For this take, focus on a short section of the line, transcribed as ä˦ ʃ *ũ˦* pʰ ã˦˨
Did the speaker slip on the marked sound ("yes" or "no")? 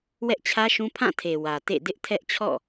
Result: no